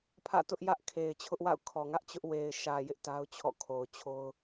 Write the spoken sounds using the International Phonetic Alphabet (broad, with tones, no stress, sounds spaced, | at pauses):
pʰ ä̰˦˨ t ʊ˦ ʔ j ä˦ ʔ kʰ e˨ ɪ̯ t͡ɕʰ ʊ˦ ʔ w a̰˦˨ ʊ̯ kʰ ɔ˨ ŋ ä˦ ʔ t͡ɕ ʊ˦ ʔ w e˨ ɪ̯ ʃ ä˨ j ɪ˦ ʔ t a˦ ʊ̯ t͡ɕʰ ɔ̰˦˨ kʰ o˨ ʊ̯ t͡ɕʰ o˦ ʊ̯